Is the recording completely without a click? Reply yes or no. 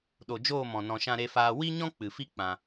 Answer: yes